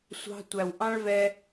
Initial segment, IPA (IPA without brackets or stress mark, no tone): sʷ